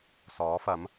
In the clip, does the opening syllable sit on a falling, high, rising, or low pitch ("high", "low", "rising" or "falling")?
rising